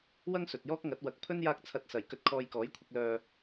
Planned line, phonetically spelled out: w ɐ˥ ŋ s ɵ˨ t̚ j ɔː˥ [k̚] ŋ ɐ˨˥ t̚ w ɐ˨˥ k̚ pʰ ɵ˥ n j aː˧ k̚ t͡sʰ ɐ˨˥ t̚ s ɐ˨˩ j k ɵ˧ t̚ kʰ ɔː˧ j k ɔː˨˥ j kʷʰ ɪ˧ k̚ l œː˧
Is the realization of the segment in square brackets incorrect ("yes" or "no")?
no